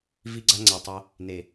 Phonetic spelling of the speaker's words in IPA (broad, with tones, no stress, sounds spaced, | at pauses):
v i˦ ɡ͡ǀ a˦ ŋ͡ǀ a˨ tˤ æ˦ | n e˨